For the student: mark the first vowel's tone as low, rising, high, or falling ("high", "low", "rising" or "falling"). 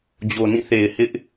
low